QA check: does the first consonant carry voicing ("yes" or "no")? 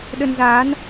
yes